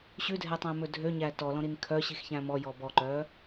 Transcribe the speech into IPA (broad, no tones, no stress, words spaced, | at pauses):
ɕʉdʱɛtˤæ̃mɵ dʱøɲæ tɔlɔ̃ɾin kʰœɕixçæ̃ mɔjɔ bɔǃœ